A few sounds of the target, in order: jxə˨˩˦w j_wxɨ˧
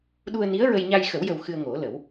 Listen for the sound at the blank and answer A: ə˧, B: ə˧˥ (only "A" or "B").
A